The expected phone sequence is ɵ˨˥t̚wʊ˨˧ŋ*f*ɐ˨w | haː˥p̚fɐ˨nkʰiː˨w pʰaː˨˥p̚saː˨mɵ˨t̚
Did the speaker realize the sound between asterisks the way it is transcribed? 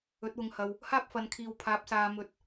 no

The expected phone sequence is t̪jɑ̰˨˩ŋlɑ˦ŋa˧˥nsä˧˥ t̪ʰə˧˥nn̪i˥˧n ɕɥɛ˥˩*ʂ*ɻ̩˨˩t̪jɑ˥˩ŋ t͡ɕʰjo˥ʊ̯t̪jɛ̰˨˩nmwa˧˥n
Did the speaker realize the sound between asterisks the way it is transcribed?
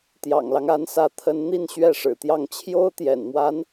yes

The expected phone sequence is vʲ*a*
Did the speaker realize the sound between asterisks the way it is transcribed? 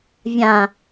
no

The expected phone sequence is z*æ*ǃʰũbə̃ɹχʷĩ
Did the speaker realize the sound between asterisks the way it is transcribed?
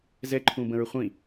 no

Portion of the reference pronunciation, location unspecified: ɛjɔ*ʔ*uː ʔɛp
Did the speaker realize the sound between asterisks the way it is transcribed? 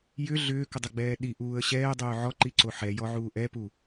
no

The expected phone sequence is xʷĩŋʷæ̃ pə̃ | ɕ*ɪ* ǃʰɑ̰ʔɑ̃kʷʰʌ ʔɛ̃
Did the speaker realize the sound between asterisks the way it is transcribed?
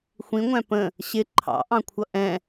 yes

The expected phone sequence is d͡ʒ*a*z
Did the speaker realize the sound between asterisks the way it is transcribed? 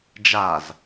yes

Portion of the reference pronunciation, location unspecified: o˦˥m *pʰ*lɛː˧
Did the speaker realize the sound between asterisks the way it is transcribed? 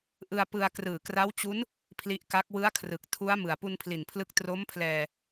yes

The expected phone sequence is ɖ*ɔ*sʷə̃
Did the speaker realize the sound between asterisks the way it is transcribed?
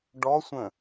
yes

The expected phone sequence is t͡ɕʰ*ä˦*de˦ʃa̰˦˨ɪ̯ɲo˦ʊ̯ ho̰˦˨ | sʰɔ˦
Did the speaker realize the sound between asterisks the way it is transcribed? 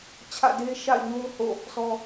no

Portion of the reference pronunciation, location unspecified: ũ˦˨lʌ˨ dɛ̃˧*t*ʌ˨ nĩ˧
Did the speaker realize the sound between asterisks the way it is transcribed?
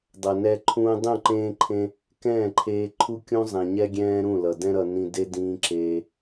no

